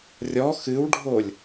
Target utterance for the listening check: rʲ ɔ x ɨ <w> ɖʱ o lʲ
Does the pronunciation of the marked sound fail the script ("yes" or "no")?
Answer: no